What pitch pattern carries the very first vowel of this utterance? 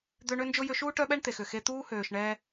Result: high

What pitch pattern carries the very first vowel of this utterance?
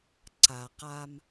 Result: low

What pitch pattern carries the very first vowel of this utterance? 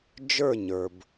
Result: falling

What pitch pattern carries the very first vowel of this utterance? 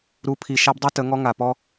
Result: rising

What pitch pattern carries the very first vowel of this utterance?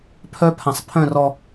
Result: high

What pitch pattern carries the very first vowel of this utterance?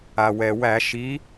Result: low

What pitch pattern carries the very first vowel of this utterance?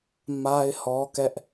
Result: high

